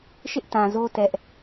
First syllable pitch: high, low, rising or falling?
high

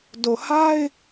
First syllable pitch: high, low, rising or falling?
low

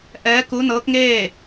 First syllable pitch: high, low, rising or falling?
rising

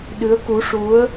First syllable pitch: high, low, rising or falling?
rising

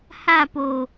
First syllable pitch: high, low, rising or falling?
falling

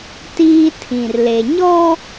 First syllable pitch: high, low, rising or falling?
high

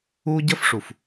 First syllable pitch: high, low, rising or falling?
high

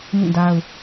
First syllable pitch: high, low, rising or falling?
falling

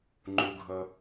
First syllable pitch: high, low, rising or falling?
low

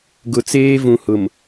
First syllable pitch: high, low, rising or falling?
low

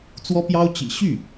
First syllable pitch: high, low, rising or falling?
high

